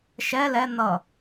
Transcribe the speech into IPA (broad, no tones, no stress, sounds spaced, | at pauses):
ʃ ɛ l ɛ n̪ ʌ